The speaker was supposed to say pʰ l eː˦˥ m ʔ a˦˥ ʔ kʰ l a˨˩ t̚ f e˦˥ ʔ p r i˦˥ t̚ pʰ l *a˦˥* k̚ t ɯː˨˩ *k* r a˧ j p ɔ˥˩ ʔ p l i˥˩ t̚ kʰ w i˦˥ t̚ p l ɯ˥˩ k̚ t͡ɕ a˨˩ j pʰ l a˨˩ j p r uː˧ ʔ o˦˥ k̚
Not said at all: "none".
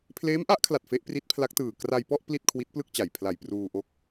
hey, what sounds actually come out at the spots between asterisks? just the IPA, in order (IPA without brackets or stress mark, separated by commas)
a˦˥, k